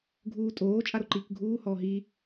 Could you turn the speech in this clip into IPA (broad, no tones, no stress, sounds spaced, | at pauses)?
ɡʱ uː tʼ oː t͡ʃʼ a ɾ o ǃ iː k ɡʱ uː h ɔː ɦ i